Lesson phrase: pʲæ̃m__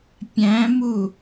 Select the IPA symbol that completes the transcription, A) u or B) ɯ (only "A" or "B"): A